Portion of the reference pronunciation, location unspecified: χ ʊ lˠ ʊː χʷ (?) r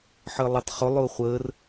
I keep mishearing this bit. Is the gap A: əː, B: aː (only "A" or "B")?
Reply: A